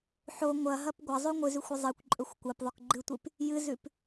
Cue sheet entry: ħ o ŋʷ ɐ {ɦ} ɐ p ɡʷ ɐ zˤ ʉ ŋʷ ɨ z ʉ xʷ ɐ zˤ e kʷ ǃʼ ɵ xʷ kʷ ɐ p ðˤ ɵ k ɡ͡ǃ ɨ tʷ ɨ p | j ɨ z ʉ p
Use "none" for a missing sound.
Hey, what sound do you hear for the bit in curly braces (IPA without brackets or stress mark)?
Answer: ɦ